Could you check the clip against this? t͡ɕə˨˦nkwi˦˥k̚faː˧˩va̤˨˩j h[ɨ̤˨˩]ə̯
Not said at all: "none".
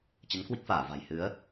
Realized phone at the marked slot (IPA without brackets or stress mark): ɨ˨˦